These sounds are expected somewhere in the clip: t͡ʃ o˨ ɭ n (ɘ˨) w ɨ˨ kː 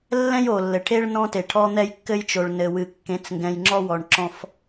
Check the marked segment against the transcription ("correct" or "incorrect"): correct